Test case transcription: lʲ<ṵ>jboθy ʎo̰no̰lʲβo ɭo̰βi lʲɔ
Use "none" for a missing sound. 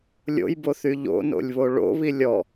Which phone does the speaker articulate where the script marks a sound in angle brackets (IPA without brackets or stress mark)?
o̰